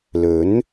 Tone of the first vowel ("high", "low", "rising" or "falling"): rising